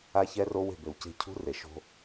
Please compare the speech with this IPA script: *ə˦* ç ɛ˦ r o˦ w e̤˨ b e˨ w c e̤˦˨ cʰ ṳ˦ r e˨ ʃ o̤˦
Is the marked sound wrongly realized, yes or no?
yes